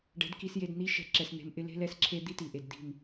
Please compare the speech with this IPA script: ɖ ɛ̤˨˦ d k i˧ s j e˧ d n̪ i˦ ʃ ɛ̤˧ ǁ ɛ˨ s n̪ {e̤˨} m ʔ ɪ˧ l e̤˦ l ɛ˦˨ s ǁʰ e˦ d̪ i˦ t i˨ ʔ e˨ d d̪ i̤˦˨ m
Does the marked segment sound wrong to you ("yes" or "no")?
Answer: yes